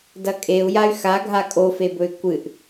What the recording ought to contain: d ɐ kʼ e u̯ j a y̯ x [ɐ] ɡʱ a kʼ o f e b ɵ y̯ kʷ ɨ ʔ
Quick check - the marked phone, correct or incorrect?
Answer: incorrect: a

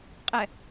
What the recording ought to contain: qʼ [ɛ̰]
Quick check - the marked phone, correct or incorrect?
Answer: incorrect: ɛ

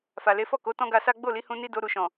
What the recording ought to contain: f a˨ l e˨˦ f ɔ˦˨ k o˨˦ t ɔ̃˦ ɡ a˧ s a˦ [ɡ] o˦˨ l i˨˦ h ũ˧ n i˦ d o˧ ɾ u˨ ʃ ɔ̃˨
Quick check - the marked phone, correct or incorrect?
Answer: incorrect: ɡ͡b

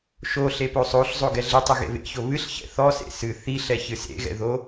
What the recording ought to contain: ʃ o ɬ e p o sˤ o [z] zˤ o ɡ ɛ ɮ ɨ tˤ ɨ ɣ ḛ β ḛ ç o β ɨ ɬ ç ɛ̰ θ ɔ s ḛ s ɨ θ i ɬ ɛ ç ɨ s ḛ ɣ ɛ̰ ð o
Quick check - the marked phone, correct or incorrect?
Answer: incorrect: ɬ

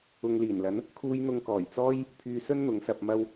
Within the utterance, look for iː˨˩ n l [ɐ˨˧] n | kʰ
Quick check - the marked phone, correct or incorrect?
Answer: incorrect: ɐ˨˥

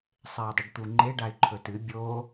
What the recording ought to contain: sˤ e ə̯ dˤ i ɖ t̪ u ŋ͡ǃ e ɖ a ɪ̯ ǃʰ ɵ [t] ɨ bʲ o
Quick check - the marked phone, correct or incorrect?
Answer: correct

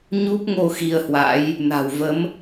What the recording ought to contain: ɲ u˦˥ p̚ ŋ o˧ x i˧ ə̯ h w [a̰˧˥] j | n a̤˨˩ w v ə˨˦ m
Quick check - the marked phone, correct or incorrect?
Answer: correct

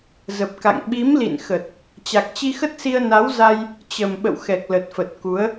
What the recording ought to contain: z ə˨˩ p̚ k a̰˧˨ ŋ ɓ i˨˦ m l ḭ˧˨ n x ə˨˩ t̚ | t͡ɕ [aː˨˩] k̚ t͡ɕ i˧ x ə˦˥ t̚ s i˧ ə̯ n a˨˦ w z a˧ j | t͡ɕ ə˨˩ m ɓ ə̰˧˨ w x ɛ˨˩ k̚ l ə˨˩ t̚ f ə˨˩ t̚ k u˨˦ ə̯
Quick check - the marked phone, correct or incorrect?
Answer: incorrect: a˨˩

